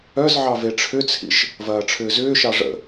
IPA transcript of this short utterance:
œ z ʕ ɑ v e ʈ͡ʂʰ ʏ t͡sʰ ḭ ʃ | v ɐː ʈ͡ʂʰ ʏː z ʏː ʃ ɑ ʐ ə̰

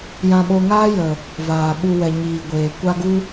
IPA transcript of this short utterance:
j ã˧ ɓ o˧ ŋ aː˦ j ə˨ | v aː˨ ɓ u˧ w ɛ˨ ɲ iː˨ ɡʷ eː˨ kʷ a˦ ɡ u˦

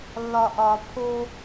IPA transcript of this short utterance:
lː ɒ ʔ ɒ pʰ o

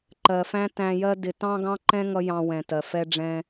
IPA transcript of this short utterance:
ǃ ɜ˨ f æ̃˦ t æ̃˧ j ɜ˦ d ɪ˧ t ɑ̃˦ ɡ ɑ̃˦ ǃ ɛ̃˦ ŋ ʌ˦ j ɑ̃˧ w ɛ̃˨ t ɜ˨ f ɛ˧ ɖ͡ʐ ɛ̃˧

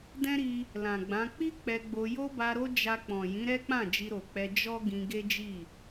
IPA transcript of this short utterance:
d ɛ̃˦ ɾ i˧ | l ã˨ ɡ͡b ã˨˦ k͡p i˦ k͡p ɛ˧ ɡ͡b o˧ j o˦ b a˧ ɾ o˦ d͡ʒ a˧ k͡p ɔ̃˨ j ĩ˨˦ ɾ ɛ˦ k͡p ã˦˨ d͡ʒ i˧ ɾ o˨ k͡p ɛ˧ d͡ʒ ɔ˦ ɡ ĩ˧ ɡ e˦ d͡ʒ i˦˨

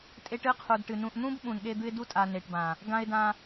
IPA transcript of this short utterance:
tʼ e˦ ʈ ɨ˦ qʰ u˨ d ʈ ɨ˨ n ũ˨ ʔ n̪ ũ˦ b ɓ ũ˨ n ɠ e˦ d̪ ɨ˦ ɪ̯ d u˦ tʼ a˨ n e˨ ʈ b ã˨ | ɡ ã˦ ɪ̯ d ã˦

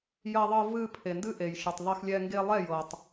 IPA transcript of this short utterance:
j ɐ˧ ðˤ ɤ˧ v ɨ˧ pʰ e˨ n d ɨ˦ ʔ e˨ j ʃ ɨ˨ tˤ ðˤ e˧ x lʲ ɛ˧ ŋ ɡ e˧ lˠ ɛ˦˨ j ɤ˨ tˤ

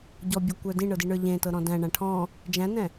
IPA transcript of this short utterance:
ɟ ɔ bʲ ə˞ kʷ ə˞ d ĩ ɳ ɤ d i ɳ ə˞ ʎ ẽ t ɤ ɾ ɔ̃ d æ̃ ɳ ã ʈʰ ɔ̃ | d͡ʒ æ̃ n ɛ̃

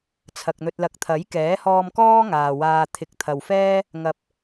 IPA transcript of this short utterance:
t͡sʰ ɐ˨ k̚ n̪ ɵ˧ t̚ l ɐ˧ k̚ t̪ʰ ɐ˨˥ j k ɛː˨˥ h ɔː˧ m k ɔː˥ ŋ aː˨ w aː˧ t̪ʰ ɪ˨ k̚ t̪ʰ ɐ˨ w f ɛː˥ | ŋ ɐ˨ p̚

